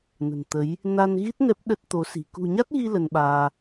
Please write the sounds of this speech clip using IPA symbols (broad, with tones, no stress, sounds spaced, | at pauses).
n ə̤˨˩ n t̪ ə˨˦ j | n a˧ n ɣ i˦˥ t̚ n ɛ˦˥ p̚ ɗ ə˦˥ t̚ t̪ o˨˦ s i̤˨˩ k ṳ˨˩ ɲ a˦˥ t̚ ɣ i˧ l ə˧ n ɓ aː˧